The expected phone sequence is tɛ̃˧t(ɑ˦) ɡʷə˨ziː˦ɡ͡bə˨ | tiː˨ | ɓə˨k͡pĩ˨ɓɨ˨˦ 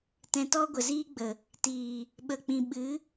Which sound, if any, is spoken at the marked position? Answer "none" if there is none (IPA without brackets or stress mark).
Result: ɔ˦